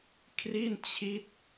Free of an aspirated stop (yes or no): no